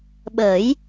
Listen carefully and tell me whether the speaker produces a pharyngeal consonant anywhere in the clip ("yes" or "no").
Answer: no